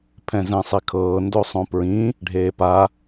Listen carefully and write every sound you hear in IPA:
pʰ ɛ̃ z ɛ̃ sˤ i kʰ ɤː n d o sˤ õ p ɹ ĩ | ɖʱ eː p a

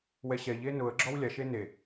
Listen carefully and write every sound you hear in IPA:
w ɛ ɕ ɛ ʎ e n ʊ ə̯ ɡ͡ǁ ɔ w lʲ a ʃ e n e

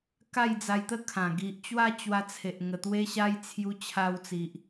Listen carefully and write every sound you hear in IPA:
k a˥˧ j d͡z a˧ j t̪ ə˥˧ kʰ ã˨˩ ɡ i˨ ʔ t͡ɕ w a˥˧ t͡ɕ w a˧ t͡sʰ e˨ ʔ ŋ ə˨˩ t̪ w e˧ ɕ a˧ j t͡sʰ j u˧ t͡ɕʰ a˧ w t͡s i˨ ʔ

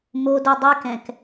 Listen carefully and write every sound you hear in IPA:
m o d u dˤ y k ɛ̃ k

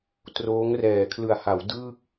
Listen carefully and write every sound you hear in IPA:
t r oː˦˥ ŋ r ɛː˨˩ kʰ l ɯ˨˩ a̯ h a˩˦ w d ɯː˥˩ k̚

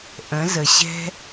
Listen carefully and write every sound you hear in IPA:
ʔ ə̃˨˦ z ə˨ ɕ ɛ̤˦

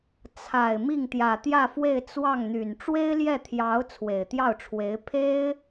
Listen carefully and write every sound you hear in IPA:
t͡sʰ a˨˩ ɪ̯ m i˥˩ ŋ t̪ j ä˨˩ t̪ j ä˥˧ f w e˥˧ ɪ̯ t͡s w ɑ˥˩ ŋ n̪ y˨˩ n ʈ͡ʂ w e˥ ɪ̯ l j ɛ˥˩ t̪ʰ j ɑ˧˥ ʊ̯ t͡sʰ w e˨˩ ɪ̯ t̪ j ɑ˥˩ ʊ̯ ʈ͡ʂʰ w e˧˥ ɪ̯ pʰ e˥ ɪ̯

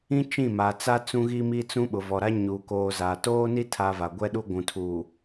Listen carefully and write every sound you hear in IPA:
ĩ˦ t͡ʃ ĩ˦˨ m a˨ t͡s a˦ t͡s ũ˦ ɣ i˦ m i˦ t͡s ũ˦ ɓ ʊ˨ v ɔ˨ ɾ a˦ ɲ uː˨ k oː˨ z a˨ t oː˦ n i˦ tʰ a˨ v a˨ ɡʷ ɛ˦ ɗ u˦ ɡʷ ũ˨ tʰ uː˨

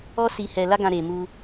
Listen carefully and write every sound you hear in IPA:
ɔ˦ s i˧ h ɛ˧ l a˦ ɡ ã˧ ɾ e˨ m u˧

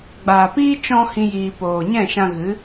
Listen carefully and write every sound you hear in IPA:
ɡ͡b aː˨ p iː˦ t͡ʃ ɔ̃˧ h ĩ˦ j iː˧ p oː˧ ɲ ɛ̃˦˨ ʃ ã˧ ɣ ɨ˨˦

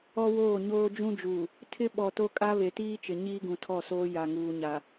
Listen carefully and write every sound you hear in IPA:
ɔ˦ w oː˦˨ ɲ oː˦ d͡ʒ ũ˦ d͡ʒ uː˨ | tʰ ɪ˦ ɓ ɔ˨ t o˦ kʼ a˦ β e˨ t iː˦ t͡ʃ ɪ˨ ɲ iː˦ ɡ ũ˨ tʰ ɔ˦˨ s oː˦ j a˨ ŋ uː˨ ɲ a˨

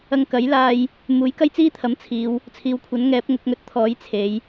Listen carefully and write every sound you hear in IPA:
ɐ˧ ŋ k ɐ˨˥ j l aː˧ j | m uː˨˥ j k ɐ˥ j t͡s iː˥ t̪ʰ ɐ˨˥ m t͡sʰ iː˨˧ w | t͡sʰ iː˨ w kʷʰ ɐ˨˥ n ŋ ɛː˨˥ p̚ ŋ ʊ˧ k̚ ŋ ɵ˧ t̚ t̪ʰ ɔː˨˥ j t͡sʰ e˨˥ j

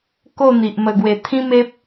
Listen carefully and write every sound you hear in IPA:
k o˥˧ n̪ i˨ ʔ m ə˨˩ ɡ w e˨˩ t̪ʰ ĩ˦ m e˦ p̚

